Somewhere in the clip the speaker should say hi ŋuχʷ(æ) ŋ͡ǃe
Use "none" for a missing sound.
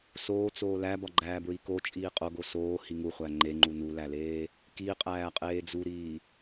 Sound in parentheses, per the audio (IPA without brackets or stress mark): æ